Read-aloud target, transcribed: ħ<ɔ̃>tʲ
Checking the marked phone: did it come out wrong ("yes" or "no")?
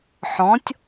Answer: no